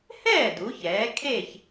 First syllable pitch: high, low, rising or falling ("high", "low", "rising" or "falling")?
falling